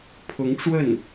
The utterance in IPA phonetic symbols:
pʰ ʊ˧˥ ŋ ʈ͡ʂ w ə˥˩ n

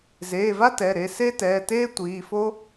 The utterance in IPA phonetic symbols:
z eː˩˧˩ v a˥ t ɛ˩˧˩ ɾ e˩˧˩ s e˥ t ɛː˩˧˩ t eː˥ tʷ iː˩˧˩ f o˥

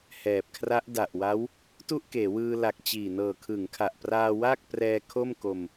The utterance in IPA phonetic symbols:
h ɛː˨˩ p̚ kʰ r a˦˥ ʔ d a˨˩ ʔ w a˦˥ w | t u˥˩ ʔ k eː˩˦ w ɯː˧ l a˨˩ k̚ t͡ɕ iː˨˩ n ɤː˨˩ kʰ ɯ˩˦ ŋ kʰ a˨˩ ʔ p r aː˧ w aː˥˩ k̚ p r ɛː˧ kʰ o˥˩ m k o˧ m

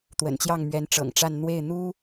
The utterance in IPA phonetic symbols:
t̪ w ə̰˨˩ n t͡ɕ j ɑ˥˩ ŋ m ɥ ɛ˧˥ n ʈ͡ʂ ɤ̰˨˩ ŋ ʈ͡ʂ a˥˧ n n̪ w e˥˩ ɪ̯ n̪ u˥

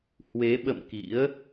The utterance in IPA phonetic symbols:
h w e˨˦ ɓ ə̰˧˨ m k ḭ˧˥ ə̯

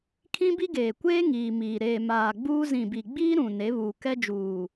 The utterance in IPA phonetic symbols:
kʰ ĩ˦ b i˦ ɡ eː˨ kʷ eː˦ ŋ iː˨ m iː˨ ɾ eː˨ m aː˨ ɡ͡b uː˦ z ĩ˨ b i˨ ɡ͡b iː˦ ɾ ũ˨ n e˨˦ β uː˨ k ɛ˦ d͡ʒ uː˨

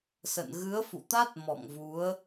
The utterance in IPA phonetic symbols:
s ə̰˧˨ n ɣ ɨ˨˦ ə̯ f ṵ˧˨ t̪ a˦˥ t̚ m ɔ̰˧˨ ŋ v u˨˦ ə̯

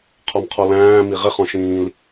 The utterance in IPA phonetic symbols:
qʰ ɔ m qʰ ɔ l æ̃ː m i ʁ ɪ χ ɔ̃ ʃ ĩː l

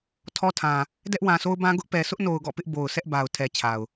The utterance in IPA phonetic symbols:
tʰ ɔ˦ tʰ ã˨ | d ɛ˦ ʔ w ã˨ s o˦ ʊ̯ b ã˦ ɡ ʊ˦ ʔ p ɛ˨ sʰ ʊ˦ ʔ n o˨ ʊ̯ ɡ ɔ̰˦˨ p ɪ˦ ʔ b o˨ ʊ̯ s ɛ˦ ʔ b a˨ ʊ̯ tʰ ɛ˨ t͡ɕʰ a˨ ʊ̯

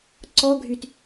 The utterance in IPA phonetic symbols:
ǀ ɔ ɡʱ y t

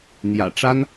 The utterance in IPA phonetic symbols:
n̪ j ä̰˨˩ ʈ͡ʂ a˥ n

